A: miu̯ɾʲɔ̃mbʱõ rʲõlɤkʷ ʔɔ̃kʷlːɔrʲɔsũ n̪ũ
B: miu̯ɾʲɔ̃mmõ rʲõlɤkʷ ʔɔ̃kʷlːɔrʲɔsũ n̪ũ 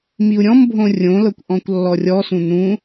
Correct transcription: A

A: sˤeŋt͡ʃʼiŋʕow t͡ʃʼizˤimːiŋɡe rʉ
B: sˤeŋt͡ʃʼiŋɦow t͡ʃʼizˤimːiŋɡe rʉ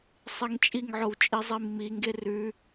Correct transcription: A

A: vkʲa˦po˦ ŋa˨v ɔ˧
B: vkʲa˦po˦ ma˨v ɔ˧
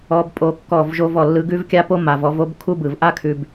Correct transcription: B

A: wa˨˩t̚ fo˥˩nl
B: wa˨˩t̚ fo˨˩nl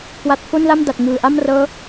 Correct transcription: A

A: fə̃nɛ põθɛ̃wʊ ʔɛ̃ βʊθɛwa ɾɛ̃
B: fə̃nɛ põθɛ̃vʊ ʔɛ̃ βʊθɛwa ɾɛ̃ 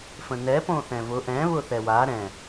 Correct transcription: B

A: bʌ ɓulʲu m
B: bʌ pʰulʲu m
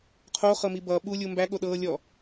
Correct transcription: A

